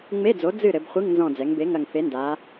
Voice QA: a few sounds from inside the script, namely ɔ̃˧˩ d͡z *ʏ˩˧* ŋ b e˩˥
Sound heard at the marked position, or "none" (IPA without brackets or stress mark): ɛ˩˧